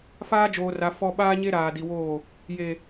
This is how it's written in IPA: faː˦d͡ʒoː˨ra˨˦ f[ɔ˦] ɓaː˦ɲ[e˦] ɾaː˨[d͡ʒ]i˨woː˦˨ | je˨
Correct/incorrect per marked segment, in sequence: correct, correct, incorrect: d

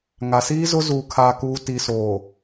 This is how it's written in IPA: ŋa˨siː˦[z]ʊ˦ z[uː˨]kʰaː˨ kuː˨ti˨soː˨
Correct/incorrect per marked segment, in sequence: correct, correct

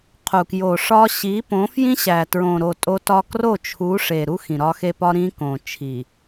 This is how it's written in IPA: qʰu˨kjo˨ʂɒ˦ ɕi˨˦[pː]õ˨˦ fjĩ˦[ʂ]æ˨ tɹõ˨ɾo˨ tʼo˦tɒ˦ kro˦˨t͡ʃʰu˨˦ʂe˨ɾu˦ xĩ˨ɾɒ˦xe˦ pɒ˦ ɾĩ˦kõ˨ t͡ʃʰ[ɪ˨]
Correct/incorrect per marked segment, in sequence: incorrect: p, incorrect: ɕ, incorrect: i˨

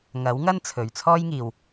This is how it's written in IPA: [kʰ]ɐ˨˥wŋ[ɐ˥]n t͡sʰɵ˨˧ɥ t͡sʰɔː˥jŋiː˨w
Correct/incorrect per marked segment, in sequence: incorrect: ŋ, correct

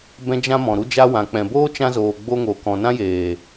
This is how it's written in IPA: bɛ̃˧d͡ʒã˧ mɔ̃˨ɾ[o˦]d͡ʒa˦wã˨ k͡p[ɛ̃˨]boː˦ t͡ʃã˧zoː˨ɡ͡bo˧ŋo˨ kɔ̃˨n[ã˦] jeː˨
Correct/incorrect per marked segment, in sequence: incorrect: u˦, correct, correct

